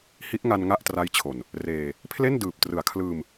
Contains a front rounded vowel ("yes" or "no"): no